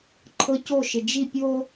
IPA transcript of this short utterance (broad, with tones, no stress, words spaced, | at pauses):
ǃʰɤ˦co˦˨ʃɪ˨ d͡ʒi˦˨ pʲo˦